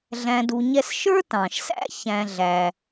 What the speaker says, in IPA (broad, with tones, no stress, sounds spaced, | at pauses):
ɮ æ̃˨ d u˨ ɲ ɛ˦ s ʃ ə˞˥ t ɑ̃˩ ʃ s æ̰˥ ç æ̃˨ ɮ æ˩